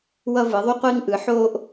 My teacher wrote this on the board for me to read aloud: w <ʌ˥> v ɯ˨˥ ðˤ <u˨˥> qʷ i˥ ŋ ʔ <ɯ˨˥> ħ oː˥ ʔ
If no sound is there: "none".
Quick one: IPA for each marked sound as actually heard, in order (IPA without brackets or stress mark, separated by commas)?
ʌ˥, u˥, ɯ˨˥